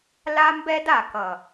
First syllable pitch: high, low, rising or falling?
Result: high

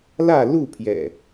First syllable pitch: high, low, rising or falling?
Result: falling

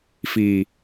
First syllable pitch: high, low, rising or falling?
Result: low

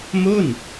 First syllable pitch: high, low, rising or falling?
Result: falling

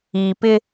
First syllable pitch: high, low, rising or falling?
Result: low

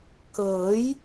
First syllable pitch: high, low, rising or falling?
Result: rising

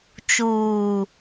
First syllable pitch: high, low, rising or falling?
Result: low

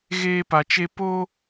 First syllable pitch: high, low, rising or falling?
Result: high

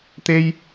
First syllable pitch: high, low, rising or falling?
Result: high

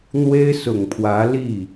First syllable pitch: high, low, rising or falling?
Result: high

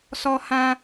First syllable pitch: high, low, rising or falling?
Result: high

